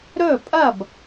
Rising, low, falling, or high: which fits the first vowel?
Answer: falling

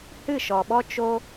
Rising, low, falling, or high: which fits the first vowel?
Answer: falling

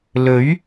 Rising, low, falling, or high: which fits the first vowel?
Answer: rising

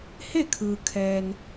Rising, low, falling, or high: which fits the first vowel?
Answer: falling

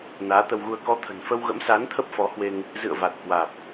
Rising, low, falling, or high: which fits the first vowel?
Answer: rising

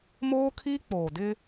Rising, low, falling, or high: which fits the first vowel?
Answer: high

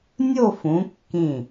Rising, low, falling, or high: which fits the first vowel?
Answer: falling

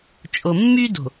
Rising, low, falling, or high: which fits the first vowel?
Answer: low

